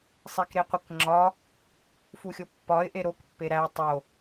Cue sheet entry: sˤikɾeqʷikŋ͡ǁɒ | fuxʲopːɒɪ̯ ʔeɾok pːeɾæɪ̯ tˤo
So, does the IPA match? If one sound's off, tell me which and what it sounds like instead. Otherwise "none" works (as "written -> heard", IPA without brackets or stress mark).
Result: none